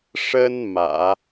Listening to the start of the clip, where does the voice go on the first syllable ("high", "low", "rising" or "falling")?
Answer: high